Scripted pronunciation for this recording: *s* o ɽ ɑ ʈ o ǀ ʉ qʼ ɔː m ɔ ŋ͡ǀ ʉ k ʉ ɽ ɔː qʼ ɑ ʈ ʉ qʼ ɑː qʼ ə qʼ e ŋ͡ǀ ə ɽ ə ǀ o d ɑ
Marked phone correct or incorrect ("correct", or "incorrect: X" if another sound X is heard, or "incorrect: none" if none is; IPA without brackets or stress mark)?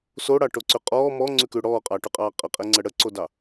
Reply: correct